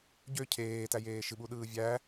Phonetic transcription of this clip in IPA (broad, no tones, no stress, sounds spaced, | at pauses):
ɟ ø cʰ eː t æ j eː ʃ ɨ ɓ u ɗ ɯː vʲ æ